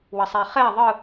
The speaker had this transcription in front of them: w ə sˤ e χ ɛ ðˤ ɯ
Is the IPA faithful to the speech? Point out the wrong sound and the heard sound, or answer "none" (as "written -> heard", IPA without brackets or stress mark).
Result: none